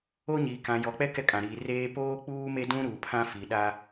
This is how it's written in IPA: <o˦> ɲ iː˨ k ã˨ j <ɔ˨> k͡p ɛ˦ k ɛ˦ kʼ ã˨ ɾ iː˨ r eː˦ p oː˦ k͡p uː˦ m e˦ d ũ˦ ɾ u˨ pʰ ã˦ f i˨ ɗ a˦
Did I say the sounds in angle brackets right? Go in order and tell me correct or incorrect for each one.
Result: correct, correct

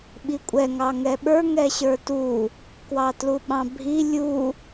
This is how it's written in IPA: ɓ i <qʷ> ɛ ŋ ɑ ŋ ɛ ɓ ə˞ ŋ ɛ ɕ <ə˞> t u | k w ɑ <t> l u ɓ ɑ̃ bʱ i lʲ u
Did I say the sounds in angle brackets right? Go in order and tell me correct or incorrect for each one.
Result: incorrect: kʷʼ, correct, correct

